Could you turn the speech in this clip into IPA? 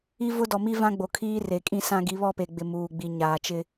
i˦ vʊ˦dɔ˨mi˦ vã˦ɡ͡bo˨kʰiː˦re˨ kʼĩ˦˨sã˦ ɡi˨˦βɔ˦˨pe˨ɡ͡bɪ˨ muː˨ɡ͡bi˨ ɲaː˨t͡ʃɪ˦

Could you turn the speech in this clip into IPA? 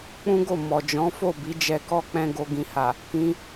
k͡pũ˦ɡo˦˨ mɔ˨d͡ʒɔ̃˨˦fo˦˨ bi˨˦d͡ʒɛ˧kɔ˦k͡pɛ̃˧ ɡo˨ɡĩ˨ha˨ | kĩ˧

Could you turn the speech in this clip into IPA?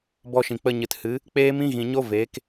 bɔ˧ʃĩ˨ k͡pə˧ɲɨ˨thɨ˨˦ | k͡peː˦mĩ˦ ɣĩ˨ɲo˦ veː˨˦k

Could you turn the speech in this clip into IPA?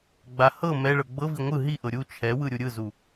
ɡ͡ba hɤ mɛɭɤ ɡ͡bɤvi ŋʷɯ ɦiʔɤ ɾʲu t͡ʃʰɛwɯ ɾʲuɾʲɯzu

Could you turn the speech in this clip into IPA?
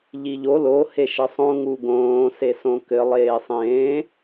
ʎiʎo lo heʃɘsˤõ ŋuɡõː sesõkɘ lˠeːsˤẽː

